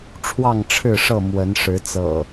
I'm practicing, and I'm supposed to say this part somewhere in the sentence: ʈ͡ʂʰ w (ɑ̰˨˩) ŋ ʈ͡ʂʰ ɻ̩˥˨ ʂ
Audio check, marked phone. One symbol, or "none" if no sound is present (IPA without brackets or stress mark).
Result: ɑ˥˨